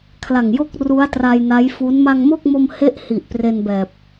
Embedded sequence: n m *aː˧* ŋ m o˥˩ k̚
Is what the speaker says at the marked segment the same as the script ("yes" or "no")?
no